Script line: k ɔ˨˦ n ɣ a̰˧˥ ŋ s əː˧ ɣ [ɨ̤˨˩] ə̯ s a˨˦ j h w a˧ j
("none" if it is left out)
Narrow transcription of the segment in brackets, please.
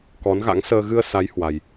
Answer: ɨ˧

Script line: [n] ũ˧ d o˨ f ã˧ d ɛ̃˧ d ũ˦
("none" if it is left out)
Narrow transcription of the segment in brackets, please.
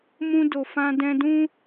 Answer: m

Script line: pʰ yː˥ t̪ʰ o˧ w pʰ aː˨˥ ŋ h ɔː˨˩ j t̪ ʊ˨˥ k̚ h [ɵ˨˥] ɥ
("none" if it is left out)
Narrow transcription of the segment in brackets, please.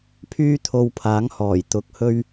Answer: ɵ˥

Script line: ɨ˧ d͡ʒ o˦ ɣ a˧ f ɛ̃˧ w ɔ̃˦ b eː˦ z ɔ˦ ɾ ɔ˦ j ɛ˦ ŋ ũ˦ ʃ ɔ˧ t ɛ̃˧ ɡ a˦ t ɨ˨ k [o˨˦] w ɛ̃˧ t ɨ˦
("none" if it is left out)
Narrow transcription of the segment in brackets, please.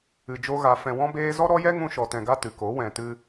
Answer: o˨˦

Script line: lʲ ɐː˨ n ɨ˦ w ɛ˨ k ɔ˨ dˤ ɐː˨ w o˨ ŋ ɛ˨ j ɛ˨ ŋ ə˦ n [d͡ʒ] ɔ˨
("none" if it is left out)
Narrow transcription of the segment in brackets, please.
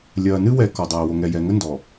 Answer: d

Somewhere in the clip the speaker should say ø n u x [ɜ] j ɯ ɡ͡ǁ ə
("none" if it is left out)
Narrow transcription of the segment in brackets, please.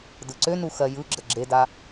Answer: ɜ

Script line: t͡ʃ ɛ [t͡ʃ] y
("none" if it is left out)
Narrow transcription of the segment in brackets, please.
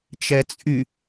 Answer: t͡sʼ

